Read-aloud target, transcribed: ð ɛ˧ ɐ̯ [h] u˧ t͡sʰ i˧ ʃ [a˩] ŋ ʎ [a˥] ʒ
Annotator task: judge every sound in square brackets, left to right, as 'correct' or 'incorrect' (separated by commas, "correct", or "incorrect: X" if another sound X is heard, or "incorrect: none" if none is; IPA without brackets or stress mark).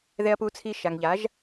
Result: incorrect: p, correct, incorrect: a˩˥